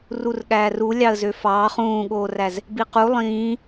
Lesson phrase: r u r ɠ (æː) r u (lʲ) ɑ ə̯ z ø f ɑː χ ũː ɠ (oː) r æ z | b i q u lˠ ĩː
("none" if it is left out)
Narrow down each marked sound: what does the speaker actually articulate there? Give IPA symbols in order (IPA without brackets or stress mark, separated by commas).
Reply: æː, lʲ, oː